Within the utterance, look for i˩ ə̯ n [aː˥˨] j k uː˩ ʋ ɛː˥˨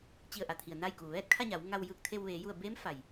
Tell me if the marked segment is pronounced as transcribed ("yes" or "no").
yes